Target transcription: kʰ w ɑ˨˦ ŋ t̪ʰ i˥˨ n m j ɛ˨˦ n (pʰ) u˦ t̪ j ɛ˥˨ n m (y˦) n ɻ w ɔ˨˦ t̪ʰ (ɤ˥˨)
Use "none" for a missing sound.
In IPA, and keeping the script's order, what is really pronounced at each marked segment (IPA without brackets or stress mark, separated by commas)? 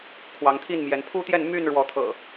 pʰ, y˥˨, ɤ̰˨˩